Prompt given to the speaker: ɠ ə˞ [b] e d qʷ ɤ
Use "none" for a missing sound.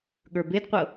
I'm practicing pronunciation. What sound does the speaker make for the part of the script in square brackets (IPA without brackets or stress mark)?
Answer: b